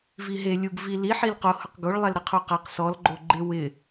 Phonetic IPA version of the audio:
v i ɦ e lʲ u ɡ v i l i ħ i l q o h ʊ q ɡ o ɭ lˠ ɛ l ɾ ɪ qʰ u q a q s ɔ l ɡ͡ǃ o ɡ͡ǃ ɪ w ɪ

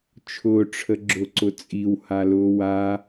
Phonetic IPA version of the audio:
t͡ʃʰ ʊː ʈ͡ʂʰ ə ɡ͡ǁ ʊ ǀ ʊ t͡sʼ i w h a l ʊː w a

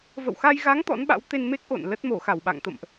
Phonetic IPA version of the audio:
v ə̰˧˨ w x a˧ j ɣ a˨˦ ŋ t̪ ɔ̰˧˥ n ɓ a̰˧˥ w t̪ e˧ n m e˦˥ k̚ ʔ o̰˧˨ n l ə˦˥ t̚ m o˧˩ x a˧˩ w ɓ a̰˧˨ ŋ t̪ ə̰˧˨ m ʔ

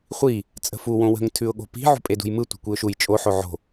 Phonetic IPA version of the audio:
χʷ i | t͡sʼ ə̤ f u w õ w ə̤ ŋ tʰ ʉ ʊ̯ ɠ o̤ p i̤ ʕ ṳ pʼ e d ṳ j m ɯ tʷ i̤ kʷ i ʊ̯ ʃ u j t͡ʃʼ o ħ o ʕ o̤

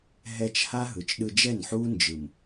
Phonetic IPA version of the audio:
ɦ ɛ˧ t͡ʃ h a˦ ɦ ɯ˨ t͡ʃ ɗ ɯ˧ d͡ʒ ɛ˦˨ n ħ uː˦ n d͡ʒ ɯ˨ m

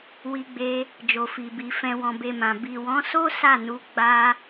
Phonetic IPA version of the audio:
w i˧ ɡ͡b e˧ | d͡ʒ o˨ f i˨ b i˨ f ɛ̃˨ w ɔ̃˨ b e˨ m ã˨ b i˨ w ɔ̃˨˦ s o˦ s a˦˨ n u˨˦ ɡ͡b a˧

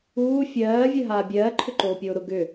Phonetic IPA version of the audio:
uː fʲ ɜː vʲ ɜ ɦ aː bʲ ɜː ǃʰ ʏ ǃ oː pʲ oː ɾ ʊ ɡ ʏ

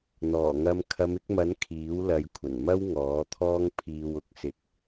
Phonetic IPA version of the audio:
n̪ ɔː˨˩ ŋ ɐ˧ m kʰ ɐ˨˧ m ɪ˨˥ k̚ m ɐ˨˥ n kʰ iː˨˥ w l ɐ˨˧ j kʷʰ ɐ˨˩ n m ɐ˥ w ŋ ɔː˨˥ t̪ʰ ɔː˥ ŋ pʰ iː˧ w ʊ˨˥ k̚ s ɪ˧ k̚

